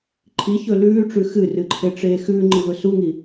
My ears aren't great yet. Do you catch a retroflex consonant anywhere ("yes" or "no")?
yes